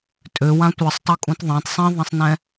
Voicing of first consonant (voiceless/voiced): voiceless